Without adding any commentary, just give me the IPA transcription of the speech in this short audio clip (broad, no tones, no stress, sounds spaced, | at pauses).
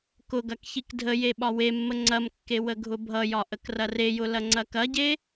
k ʊ ɡ ɐ k ç i k dʱ ə j e ɓ ɒ w e mː ə ŋ͡ǀ ɐ m kː e w ə ɡʱ ʊ bʱ ʌ j ɒ ʔ ə k r ɐ r e j ʊ l ɐ ŋ͡ǀ ɐ k ɐ ɟ e